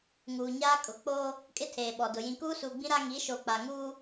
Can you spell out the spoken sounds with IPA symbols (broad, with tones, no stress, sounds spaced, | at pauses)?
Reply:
ŋ uː˨ ɲ aː˦ kʼ ʊ˨ k͡p oː˦ | kʼ ɪ˦ tʰ eː˨ ɓ ɔ˨ d ʊ˨ j ĩ˨ k uː˦ s uː˨ ɡ͡b ĩ˦ ɾ a˦ ŋ i˨˦ ʃ o˨ k͡p a˨ ŋ uː˦